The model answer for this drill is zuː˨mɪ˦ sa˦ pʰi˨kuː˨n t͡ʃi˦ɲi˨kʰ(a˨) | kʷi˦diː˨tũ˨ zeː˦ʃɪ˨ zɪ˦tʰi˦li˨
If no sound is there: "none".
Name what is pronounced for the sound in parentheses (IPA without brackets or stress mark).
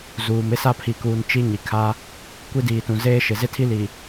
a˦